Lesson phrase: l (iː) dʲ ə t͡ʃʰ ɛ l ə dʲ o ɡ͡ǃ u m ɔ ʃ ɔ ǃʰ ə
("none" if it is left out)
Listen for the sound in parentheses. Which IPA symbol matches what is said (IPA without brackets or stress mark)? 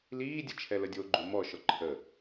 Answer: iː